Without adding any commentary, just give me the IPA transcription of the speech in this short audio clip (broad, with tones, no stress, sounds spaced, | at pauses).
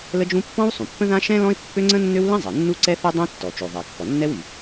l ə˥ d͡ʒ ũ˥ pː ɔ̃˥ w sˤ ũ˩ pː ə̃˥ ð ã˥ ʃ ɛ̃˥ l ɔ̃˥ ɪ̯ pː ø˥ ŋ͡ǀ ə̃˥ nː ø˥ w l ɛ̃˥ zˤ ɛ˩ nː u˥ ǀ ɛ˥ θ ɛ˥ dˤ ɛ̃˥ tː ɔ˩ t͡ʃ o˩ ðˤ ɛ˩ kː ɔ˩ nː ɛ˥ w y˩